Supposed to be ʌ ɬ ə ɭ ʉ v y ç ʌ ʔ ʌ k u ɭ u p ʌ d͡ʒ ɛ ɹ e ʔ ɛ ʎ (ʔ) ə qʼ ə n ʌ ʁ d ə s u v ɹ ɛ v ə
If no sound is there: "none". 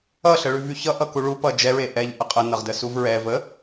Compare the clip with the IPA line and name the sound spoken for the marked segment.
ʔ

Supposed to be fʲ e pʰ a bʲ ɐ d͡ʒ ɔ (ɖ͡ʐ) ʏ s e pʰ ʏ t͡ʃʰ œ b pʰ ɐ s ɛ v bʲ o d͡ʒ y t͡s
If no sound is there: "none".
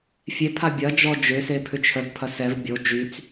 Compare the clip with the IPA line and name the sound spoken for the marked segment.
d͡ʒ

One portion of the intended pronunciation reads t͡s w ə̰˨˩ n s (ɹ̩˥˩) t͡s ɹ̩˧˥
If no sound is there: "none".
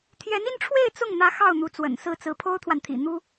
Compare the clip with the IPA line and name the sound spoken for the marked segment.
ɹ̩˥˩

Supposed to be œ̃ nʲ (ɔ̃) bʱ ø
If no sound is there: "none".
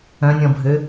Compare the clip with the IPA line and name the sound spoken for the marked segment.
ɔ̃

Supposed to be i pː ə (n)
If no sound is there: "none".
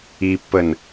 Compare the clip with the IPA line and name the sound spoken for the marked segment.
n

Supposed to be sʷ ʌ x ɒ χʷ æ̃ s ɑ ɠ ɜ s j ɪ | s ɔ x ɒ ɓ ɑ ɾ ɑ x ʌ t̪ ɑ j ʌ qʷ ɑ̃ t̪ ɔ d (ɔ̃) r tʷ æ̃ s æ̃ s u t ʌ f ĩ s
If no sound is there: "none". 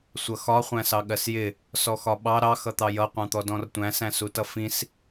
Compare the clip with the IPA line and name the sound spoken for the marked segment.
ɔ̃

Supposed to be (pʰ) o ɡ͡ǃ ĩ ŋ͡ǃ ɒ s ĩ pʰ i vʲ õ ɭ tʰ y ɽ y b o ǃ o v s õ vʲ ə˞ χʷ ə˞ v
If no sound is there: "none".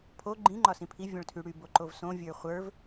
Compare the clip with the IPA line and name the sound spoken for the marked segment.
pʰ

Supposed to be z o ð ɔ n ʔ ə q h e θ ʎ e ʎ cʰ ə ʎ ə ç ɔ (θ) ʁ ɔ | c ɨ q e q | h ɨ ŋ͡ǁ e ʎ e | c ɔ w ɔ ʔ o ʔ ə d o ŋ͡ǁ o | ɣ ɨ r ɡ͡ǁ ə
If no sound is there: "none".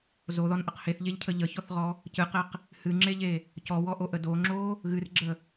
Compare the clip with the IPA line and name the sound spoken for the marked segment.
θ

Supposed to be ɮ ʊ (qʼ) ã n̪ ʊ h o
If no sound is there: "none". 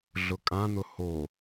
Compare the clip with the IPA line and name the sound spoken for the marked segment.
kʼ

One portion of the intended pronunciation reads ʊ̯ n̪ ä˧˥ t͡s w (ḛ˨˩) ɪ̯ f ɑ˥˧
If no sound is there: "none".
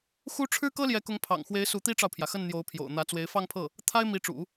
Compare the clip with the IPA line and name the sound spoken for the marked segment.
e˧˥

